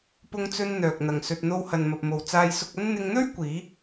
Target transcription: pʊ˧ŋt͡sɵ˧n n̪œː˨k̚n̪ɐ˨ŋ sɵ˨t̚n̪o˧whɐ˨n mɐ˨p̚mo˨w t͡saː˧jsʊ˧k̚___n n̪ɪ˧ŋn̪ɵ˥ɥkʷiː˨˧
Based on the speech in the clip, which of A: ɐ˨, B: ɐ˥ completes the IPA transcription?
B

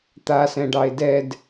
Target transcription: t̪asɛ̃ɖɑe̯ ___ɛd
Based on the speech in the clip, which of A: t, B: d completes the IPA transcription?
B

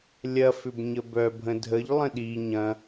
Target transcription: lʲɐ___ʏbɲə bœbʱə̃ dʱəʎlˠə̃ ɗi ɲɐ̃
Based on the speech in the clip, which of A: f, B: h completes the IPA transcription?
A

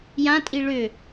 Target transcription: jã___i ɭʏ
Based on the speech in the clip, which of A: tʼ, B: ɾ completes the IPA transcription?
A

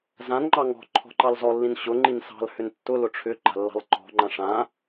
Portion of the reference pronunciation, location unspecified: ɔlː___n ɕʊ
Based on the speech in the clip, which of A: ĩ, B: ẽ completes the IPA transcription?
A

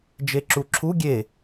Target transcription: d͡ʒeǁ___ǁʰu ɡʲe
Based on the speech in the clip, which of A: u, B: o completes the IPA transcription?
A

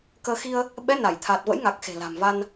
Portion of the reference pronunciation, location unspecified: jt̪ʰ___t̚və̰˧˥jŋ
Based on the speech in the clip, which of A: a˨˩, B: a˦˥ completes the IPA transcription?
A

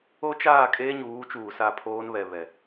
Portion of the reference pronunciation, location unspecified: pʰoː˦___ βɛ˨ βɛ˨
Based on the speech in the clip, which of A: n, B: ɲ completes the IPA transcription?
A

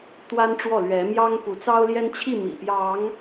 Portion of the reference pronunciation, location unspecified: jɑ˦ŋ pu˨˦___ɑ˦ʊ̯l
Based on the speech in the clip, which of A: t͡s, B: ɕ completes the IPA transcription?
A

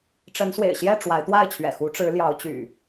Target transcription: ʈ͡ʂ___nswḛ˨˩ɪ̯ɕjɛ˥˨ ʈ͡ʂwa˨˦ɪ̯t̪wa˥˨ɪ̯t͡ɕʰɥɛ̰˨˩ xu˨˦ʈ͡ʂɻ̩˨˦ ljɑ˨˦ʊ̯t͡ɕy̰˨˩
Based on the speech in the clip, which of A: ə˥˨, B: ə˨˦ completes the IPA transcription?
B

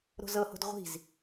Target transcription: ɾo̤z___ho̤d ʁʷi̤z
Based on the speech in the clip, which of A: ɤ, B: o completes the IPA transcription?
A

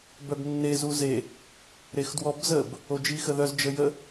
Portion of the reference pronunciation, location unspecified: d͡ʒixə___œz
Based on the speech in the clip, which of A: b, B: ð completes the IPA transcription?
B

